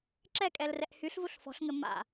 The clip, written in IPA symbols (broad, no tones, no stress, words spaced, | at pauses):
ǁɛkʼɛlrɛʔ hyɬvuɬ fɔ̤ɬŋɘ ma̰